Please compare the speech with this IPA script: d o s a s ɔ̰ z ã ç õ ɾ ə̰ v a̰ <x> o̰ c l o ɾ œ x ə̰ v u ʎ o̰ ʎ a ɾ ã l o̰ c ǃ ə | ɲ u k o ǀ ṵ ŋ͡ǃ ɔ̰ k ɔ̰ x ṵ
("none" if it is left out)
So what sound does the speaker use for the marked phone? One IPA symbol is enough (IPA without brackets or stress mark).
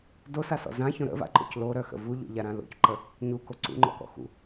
ǃ